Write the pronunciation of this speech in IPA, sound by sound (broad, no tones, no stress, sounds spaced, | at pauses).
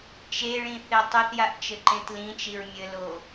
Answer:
t͡ʃ e ɭ ĩ θ e tˤ ɵ θ j a ʔ t͡ʃ ɘ ǃ ẽ t l ĩ t͡ʃ i ɹ mʲ ɘ l o